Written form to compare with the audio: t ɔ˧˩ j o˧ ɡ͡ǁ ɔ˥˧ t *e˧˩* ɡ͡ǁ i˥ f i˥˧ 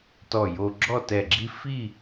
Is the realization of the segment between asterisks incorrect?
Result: yes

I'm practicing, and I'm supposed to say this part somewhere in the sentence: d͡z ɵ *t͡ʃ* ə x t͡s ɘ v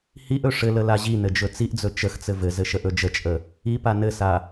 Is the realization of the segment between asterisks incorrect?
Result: no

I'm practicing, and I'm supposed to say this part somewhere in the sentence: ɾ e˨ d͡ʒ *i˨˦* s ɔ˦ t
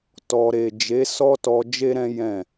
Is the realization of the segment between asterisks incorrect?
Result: yes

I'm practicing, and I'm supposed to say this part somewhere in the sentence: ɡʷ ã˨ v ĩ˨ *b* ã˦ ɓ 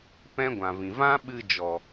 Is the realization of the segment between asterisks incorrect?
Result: yes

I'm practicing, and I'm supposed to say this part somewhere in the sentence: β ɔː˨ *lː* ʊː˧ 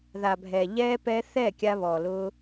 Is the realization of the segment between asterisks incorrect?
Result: yes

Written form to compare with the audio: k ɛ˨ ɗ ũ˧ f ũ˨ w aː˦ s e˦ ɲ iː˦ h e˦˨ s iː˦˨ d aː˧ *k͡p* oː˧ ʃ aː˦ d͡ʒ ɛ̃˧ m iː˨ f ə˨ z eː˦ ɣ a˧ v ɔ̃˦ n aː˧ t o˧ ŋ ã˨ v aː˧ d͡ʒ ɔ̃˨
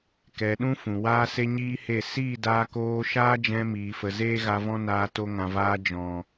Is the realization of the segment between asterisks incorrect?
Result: yes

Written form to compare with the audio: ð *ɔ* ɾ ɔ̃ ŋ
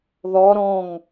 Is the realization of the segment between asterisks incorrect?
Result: no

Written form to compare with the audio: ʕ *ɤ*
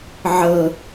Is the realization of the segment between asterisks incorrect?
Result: no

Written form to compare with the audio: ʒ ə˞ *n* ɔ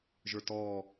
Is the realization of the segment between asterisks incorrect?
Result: yes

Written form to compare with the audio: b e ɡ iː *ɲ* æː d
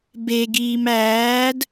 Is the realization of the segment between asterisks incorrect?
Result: yes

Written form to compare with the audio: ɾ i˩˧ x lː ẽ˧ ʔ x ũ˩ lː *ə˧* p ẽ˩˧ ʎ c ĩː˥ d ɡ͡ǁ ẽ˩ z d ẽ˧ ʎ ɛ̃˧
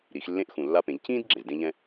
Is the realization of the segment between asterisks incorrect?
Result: yes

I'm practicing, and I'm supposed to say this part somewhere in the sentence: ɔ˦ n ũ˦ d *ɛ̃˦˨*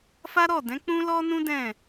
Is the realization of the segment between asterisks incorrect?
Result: no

